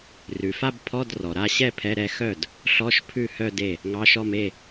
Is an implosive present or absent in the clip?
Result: absent